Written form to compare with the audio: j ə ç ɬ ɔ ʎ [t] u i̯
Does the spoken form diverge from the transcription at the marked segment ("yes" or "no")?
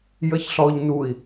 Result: yes